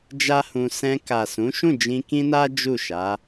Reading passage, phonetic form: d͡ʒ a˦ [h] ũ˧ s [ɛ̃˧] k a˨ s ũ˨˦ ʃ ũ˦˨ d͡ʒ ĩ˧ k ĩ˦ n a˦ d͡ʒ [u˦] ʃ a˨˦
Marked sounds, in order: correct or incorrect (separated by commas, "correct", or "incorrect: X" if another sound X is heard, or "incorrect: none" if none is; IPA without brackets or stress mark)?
correct, correct, incorrect: u˦˨